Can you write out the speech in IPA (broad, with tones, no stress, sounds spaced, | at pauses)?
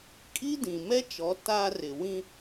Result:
kʼ i˦ d ĩ˨ m ɛ˦ t͡ʃ ɔ˨˦ t a˦ r ɪ˨ w ĩ˦